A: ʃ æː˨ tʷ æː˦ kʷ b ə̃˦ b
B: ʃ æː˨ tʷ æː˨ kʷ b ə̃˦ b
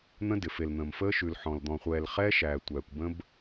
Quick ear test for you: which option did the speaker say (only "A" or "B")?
B